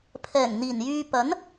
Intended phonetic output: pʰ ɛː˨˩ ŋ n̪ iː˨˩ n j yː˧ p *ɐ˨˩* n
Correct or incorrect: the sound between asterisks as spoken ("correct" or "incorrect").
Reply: incorrect